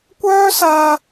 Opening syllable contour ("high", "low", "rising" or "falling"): high